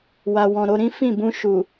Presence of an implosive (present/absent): absent